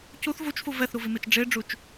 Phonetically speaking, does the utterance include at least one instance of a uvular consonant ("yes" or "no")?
no